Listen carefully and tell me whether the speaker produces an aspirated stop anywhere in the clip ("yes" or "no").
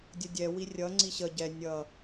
no